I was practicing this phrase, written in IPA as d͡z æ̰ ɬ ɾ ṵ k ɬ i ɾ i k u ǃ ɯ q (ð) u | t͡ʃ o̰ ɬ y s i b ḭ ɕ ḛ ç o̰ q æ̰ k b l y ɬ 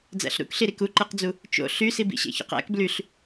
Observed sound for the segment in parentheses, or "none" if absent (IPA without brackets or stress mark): d͡z